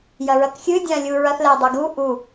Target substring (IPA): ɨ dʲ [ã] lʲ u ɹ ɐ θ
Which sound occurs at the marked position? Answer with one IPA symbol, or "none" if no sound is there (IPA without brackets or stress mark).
ã